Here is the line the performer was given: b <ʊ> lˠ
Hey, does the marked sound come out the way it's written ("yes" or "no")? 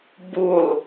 no